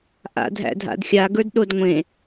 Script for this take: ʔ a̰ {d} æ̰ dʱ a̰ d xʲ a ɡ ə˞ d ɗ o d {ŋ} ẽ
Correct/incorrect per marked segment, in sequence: incorrect, incorrect

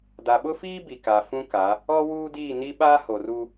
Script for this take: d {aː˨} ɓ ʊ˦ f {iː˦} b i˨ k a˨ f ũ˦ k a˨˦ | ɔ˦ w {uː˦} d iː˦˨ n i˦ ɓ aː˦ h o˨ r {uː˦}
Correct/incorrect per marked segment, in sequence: incorrect, correct, correct, incorrect

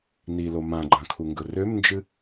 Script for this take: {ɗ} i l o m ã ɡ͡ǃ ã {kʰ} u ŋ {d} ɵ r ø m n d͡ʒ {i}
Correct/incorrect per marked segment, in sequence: incorrect, correct, incorrect, incorrect

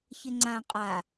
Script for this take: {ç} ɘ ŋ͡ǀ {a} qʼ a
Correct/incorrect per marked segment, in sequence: correct, incorrect

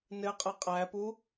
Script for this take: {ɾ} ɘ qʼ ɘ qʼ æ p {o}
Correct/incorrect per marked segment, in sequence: incorrect, incorrect

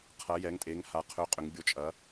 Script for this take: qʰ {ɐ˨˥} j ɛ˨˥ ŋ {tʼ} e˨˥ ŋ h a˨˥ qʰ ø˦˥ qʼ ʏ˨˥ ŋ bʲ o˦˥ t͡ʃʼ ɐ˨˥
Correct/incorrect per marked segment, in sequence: correct, correct

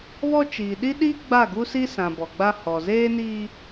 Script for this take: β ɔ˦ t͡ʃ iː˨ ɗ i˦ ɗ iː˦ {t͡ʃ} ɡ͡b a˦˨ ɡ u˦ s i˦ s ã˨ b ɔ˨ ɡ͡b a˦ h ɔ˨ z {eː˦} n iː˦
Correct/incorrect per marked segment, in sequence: incorrect, correct

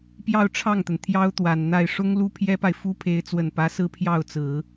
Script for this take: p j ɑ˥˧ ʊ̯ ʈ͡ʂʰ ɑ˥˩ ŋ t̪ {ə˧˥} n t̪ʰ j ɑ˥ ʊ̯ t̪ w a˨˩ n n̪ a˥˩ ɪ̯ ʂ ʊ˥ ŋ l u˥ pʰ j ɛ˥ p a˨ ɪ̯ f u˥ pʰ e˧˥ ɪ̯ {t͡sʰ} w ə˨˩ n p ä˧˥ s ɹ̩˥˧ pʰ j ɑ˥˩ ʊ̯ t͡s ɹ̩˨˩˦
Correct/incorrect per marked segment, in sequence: incorrect, incorrect

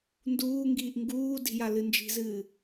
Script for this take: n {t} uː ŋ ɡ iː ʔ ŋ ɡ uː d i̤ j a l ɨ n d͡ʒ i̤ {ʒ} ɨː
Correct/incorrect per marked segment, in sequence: incorrect, incorrect

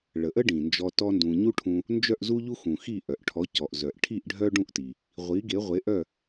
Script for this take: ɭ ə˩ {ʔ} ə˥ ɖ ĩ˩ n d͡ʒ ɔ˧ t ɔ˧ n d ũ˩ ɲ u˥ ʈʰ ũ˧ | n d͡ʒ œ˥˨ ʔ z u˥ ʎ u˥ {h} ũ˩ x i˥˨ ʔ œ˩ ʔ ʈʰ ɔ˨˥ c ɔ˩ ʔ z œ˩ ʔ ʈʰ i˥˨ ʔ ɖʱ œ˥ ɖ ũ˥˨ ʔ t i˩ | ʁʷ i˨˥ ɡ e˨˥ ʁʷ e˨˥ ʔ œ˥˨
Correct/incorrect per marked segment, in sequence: correct, incorrect

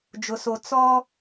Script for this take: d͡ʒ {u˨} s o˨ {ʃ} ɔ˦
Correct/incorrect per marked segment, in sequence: incorrect, incorrect

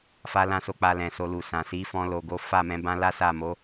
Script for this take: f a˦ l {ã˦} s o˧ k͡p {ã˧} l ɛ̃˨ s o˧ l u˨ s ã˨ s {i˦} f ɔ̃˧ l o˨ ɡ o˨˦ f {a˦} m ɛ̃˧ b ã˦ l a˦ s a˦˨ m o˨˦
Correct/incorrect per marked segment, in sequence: correct, incorrect, incorrect, incorrect

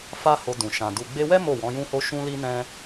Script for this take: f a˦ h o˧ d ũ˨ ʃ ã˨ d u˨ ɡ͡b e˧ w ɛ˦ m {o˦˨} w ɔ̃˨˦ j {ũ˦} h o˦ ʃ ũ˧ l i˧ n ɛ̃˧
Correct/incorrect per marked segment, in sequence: correct, correct

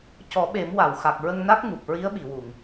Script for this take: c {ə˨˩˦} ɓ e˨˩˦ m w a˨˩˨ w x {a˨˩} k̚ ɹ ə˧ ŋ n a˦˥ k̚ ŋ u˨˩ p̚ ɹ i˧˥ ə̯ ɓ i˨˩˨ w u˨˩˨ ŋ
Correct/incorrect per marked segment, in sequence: incorrect, correct

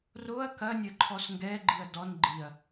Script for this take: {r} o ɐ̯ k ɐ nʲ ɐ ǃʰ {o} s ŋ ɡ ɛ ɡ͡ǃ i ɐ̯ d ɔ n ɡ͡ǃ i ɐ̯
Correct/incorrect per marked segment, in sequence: correct, incorrect

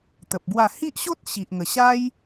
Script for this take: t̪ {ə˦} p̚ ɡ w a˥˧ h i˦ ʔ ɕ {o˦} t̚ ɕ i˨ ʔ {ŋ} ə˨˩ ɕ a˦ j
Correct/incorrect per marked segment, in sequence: incorrect, correct, correct

